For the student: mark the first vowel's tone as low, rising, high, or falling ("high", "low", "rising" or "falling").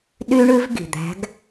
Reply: high